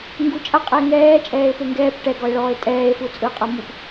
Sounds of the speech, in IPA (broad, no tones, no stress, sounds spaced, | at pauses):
ŋ ɡ u t͡ʃʼ a qʼ ɛ e̯ ŋ ɛː t͡ʃʼ ɛː e̯ p e ŋ ɡ ɛː p ʈ ɛ ɡ ɔ e̯ ɭ ɔː e̯ tʼ ɛː e̯ f u t͡sʼ ɯ qʼ ɤ m u p